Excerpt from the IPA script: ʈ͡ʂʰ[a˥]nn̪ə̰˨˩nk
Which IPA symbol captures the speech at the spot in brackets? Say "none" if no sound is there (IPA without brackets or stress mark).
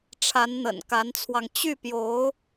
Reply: a˧˥